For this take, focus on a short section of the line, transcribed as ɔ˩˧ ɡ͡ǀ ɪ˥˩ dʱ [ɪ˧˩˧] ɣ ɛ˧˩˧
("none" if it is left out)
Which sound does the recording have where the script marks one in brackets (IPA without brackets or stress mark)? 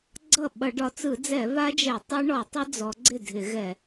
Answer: ɪ˧˩˧